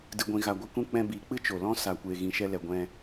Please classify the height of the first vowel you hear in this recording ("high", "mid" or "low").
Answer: high